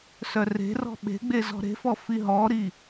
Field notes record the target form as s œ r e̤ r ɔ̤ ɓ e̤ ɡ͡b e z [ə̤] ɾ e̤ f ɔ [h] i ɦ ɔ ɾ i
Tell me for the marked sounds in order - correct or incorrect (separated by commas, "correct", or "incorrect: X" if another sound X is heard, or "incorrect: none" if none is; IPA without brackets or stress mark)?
incorrect: ɔ̤, incorrect: f